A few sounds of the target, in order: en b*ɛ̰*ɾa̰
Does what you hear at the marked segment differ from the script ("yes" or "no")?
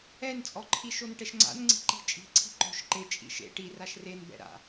no